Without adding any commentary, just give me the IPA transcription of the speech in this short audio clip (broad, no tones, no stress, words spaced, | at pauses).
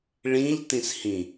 ɭĩʎ tĩshĩ